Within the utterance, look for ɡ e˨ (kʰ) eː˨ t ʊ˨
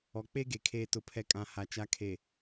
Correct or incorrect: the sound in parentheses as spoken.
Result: correct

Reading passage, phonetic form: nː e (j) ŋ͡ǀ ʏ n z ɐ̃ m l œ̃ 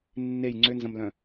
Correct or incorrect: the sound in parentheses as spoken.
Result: correct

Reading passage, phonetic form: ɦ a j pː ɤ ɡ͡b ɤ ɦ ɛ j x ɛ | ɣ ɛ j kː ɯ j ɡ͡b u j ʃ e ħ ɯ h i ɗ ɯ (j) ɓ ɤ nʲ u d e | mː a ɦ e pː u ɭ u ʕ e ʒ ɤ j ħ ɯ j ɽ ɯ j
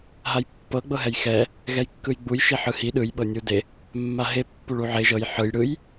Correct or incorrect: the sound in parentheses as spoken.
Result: correct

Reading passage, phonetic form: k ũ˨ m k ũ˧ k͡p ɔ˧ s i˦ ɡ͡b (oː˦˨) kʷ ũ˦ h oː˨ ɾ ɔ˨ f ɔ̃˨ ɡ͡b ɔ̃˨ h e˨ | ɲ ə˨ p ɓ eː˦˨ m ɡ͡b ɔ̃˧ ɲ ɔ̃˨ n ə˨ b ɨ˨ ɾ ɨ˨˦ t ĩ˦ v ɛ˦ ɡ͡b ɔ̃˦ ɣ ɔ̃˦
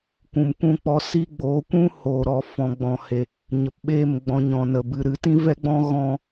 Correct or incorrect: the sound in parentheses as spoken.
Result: incorrect: oː˨˦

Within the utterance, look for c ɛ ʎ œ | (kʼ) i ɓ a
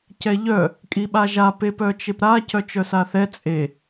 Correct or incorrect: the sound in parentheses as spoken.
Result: correct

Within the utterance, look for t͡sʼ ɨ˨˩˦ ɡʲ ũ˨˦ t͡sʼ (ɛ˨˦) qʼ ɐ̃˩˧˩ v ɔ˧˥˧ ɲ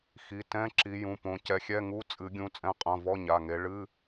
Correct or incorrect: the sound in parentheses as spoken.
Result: incorrect: ɛ̃˨˦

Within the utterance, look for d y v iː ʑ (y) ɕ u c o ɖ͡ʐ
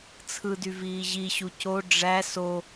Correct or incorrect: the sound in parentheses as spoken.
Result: incorrect: i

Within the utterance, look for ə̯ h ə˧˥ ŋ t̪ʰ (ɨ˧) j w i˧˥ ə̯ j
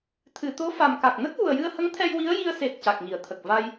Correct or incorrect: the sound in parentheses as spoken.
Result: incorrect: ɛ˧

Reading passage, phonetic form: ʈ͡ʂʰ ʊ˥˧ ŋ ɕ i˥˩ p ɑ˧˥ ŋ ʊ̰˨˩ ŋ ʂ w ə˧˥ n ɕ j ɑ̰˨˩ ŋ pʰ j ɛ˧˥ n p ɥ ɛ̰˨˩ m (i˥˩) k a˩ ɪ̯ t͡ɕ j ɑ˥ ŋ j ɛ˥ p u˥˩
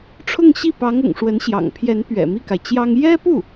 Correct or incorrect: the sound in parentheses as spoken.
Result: correct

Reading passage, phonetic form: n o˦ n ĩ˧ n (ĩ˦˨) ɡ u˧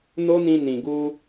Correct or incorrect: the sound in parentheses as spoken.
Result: incorrect: ĩ˨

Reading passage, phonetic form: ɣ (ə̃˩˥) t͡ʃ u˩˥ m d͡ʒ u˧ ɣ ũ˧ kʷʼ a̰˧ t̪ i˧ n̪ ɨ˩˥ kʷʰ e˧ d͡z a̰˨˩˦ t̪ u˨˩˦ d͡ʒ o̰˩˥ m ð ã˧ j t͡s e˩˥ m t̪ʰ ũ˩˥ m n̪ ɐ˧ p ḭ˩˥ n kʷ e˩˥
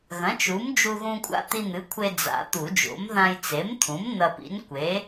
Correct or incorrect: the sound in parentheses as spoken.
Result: incorrect: ɐ̃˩˥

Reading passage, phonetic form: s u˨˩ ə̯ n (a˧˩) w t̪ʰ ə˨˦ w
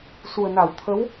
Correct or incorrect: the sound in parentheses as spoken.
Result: correct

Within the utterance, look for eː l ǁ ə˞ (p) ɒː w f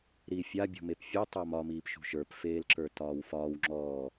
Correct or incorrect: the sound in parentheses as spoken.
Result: incorrect: t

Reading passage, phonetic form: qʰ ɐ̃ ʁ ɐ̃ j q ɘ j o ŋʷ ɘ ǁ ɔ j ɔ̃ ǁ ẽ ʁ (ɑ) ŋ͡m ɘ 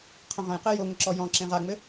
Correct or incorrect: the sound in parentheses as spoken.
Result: incorrect: a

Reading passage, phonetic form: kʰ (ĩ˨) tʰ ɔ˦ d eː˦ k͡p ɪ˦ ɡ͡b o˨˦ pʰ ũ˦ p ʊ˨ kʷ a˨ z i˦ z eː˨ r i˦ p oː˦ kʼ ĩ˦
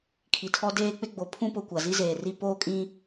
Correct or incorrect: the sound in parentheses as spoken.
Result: incorrect: i˨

